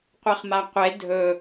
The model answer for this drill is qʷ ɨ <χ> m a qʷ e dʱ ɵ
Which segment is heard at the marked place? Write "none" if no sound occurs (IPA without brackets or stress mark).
χ